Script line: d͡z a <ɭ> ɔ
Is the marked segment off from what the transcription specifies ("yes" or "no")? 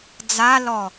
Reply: yes